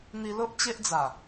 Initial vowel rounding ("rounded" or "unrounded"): unrounded